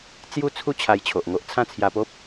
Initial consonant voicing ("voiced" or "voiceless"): voiceless